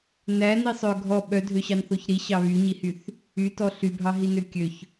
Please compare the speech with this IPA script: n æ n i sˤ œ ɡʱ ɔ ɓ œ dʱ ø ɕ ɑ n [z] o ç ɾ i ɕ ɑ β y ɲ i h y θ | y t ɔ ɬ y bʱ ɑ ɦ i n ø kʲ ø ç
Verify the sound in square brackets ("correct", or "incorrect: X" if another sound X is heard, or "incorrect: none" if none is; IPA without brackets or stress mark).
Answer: incorrect: θ